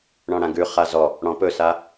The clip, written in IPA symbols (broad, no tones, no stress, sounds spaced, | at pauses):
ɳ ɔ̃ ɽ ã ɡ ʉ χ a z ɔ | ɽ ɔ̃ p ɵ s a